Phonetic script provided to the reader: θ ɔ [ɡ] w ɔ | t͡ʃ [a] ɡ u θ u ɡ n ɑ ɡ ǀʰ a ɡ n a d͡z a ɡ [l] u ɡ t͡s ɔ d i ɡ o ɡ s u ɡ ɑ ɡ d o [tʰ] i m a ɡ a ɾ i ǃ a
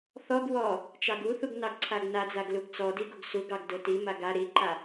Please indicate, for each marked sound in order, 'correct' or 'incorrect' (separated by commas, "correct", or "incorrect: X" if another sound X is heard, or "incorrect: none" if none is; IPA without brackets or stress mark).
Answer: correct, incorrect: ɑ, correct, incorrect: t